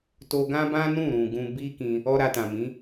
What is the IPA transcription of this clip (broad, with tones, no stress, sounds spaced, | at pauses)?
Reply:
t o˧ ɡ ã˦ b ã˦ n ũ˦˨ ɾ ũ˨ ɡ ũ˧ b i˦ k ĩ˧ | ɔ˧ ɾ a˧ t ã˨ m ĩ˨˦